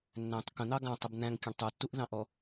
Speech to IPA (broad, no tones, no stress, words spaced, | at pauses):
nːæ̃tˤ kə̃n̪ɑ ɡɑ̃tˤəb n̪æ̃ŋkʲə̃ɳ tˤutːuʔðɑ̃ʔɔ